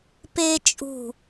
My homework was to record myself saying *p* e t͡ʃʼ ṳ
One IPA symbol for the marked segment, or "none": p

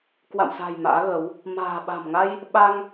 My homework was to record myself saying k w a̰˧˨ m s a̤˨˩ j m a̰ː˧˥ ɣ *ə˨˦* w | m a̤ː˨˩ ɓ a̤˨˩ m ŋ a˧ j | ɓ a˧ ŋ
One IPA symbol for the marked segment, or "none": ə˨˦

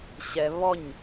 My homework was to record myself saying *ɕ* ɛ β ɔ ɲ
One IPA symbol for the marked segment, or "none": ɕ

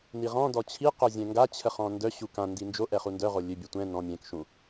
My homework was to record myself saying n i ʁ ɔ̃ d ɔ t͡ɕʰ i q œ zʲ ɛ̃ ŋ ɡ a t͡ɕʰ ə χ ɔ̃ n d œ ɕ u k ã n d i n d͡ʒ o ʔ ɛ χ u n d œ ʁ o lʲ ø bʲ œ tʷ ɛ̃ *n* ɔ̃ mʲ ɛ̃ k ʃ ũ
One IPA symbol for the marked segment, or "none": n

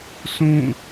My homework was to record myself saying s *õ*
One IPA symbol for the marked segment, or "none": ũ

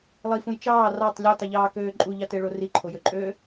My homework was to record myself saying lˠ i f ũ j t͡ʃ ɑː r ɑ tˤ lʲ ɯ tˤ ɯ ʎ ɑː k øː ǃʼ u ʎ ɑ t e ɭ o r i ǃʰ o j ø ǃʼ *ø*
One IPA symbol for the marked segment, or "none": øː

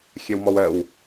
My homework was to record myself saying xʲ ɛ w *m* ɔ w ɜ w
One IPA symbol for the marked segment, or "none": m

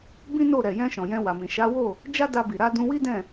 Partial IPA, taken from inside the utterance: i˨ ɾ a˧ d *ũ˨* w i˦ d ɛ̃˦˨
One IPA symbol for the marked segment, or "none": ũ˧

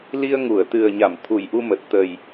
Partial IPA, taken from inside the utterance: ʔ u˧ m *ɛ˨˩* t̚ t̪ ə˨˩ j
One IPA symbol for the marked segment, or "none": ə˨˩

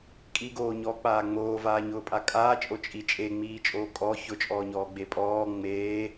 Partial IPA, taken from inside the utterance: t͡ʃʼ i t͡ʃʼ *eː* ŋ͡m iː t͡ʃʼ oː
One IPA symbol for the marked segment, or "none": e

